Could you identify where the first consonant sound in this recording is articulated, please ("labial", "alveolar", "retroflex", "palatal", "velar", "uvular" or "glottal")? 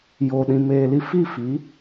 palatal